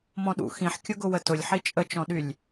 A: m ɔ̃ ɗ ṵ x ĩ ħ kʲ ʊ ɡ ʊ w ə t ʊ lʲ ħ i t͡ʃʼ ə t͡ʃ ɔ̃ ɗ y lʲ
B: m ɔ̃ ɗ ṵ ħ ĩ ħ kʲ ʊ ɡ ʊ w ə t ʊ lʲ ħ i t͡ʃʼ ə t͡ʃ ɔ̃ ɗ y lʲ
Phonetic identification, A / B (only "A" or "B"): A